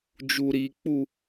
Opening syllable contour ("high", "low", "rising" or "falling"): high